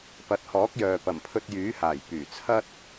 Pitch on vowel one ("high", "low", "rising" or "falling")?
rising